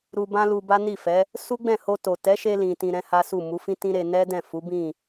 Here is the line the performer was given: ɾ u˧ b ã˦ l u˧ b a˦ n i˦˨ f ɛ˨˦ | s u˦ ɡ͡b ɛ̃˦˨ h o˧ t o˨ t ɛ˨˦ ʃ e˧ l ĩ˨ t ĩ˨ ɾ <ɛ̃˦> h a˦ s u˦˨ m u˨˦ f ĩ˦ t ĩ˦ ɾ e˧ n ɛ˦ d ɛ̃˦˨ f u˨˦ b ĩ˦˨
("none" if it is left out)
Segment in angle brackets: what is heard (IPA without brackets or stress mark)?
ɛ̃˨˦